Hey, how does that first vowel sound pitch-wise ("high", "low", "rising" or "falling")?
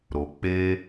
low